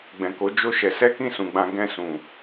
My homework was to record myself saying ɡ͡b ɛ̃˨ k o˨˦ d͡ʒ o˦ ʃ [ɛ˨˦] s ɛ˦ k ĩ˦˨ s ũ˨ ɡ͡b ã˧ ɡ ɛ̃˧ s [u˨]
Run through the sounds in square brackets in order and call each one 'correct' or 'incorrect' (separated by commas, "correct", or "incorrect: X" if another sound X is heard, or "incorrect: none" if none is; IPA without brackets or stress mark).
incorrect: ɛ˧, incorrect: ũ˨